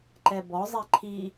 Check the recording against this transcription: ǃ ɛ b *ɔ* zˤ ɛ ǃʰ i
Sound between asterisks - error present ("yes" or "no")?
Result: no